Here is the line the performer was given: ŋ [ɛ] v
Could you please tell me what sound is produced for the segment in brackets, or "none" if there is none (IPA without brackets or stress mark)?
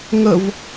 ə